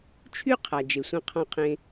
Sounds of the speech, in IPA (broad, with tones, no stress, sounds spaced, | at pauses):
t͡ʃʰ y˥ qʰ a˩ d͡ʒ e˩ sʷ ɛ̃˧ qʰ ɔ̃˧ qʰ ẽ˧